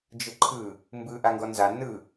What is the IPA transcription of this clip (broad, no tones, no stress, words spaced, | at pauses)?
d͡ʒɯǃʰɯ | mbɯ ʔaŋɡɔnza nɯ